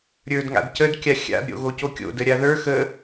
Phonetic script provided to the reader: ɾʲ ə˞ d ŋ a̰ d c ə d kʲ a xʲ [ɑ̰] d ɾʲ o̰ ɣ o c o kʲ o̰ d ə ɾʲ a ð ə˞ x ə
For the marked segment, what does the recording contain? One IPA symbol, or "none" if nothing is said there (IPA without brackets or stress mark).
a̰